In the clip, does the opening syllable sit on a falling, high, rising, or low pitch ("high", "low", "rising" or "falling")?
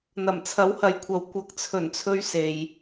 low